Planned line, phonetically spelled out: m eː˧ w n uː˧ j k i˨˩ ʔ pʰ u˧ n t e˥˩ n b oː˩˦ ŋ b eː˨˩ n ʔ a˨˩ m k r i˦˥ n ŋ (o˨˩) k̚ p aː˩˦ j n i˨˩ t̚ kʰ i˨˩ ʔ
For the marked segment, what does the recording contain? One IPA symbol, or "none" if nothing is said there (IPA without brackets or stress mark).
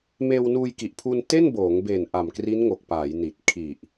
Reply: o˨˩